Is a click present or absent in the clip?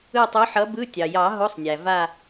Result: absent